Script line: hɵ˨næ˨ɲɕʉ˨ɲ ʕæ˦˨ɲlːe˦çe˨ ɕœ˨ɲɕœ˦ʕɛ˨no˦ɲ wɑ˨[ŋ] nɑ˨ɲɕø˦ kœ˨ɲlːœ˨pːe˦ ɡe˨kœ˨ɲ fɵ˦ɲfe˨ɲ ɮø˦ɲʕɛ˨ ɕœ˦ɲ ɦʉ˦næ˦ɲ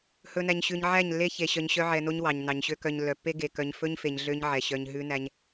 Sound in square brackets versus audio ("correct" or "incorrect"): incorrect